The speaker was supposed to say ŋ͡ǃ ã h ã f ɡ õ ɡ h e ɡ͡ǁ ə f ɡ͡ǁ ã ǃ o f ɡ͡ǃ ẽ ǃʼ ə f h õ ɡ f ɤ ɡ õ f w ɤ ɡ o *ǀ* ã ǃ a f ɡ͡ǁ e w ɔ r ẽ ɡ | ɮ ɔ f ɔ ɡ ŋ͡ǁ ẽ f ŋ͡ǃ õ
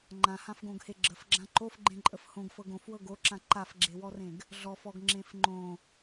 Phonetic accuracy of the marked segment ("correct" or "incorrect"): incorrect